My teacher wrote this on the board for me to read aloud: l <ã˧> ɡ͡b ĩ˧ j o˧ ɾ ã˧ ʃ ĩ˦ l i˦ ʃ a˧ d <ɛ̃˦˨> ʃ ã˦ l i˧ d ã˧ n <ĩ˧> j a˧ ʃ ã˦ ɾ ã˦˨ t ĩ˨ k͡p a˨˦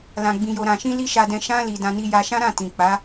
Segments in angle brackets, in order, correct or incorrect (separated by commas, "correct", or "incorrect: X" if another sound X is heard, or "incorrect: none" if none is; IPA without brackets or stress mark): correct, incorrect: ɛ̃˧, incorrect: i˧